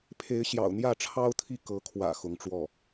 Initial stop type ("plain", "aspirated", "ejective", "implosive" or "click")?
aspirated